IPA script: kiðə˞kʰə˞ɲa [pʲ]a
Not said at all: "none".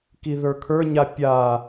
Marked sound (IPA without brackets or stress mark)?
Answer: pʲ